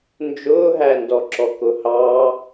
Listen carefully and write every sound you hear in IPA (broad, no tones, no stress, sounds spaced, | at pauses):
n d͡ʒ ʊː ɦ æ n d ɔ ǁ ɔ k ʊ h ɑ